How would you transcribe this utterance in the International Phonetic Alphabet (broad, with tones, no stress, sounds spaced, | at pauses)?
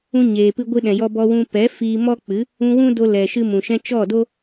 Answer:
ũ˧ ɲ eː˨ p ɨ˧ ɡʷ ɨ˧ ɗ ɛ̃˨ j ɔ˧ b ɔ˧ w ũ˧ p ɛ˨˦ f iː˧ m ɔ˦ k͡p ɨ˨˦ | ũ˧ w ũ˦ d o˧ l ɛ˨ ʃ ɨ˧ m ũ˨ ʃ ɛ̃˧ t͡ʃ ɔ˦˨ d o˦